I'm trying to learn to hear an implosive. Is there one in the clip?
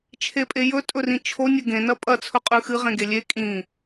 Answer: no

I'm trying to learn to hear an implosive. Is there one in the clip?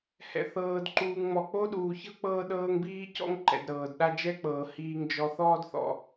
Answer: yes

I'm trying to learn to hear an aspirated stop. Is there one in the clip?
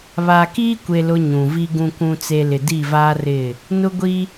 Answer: no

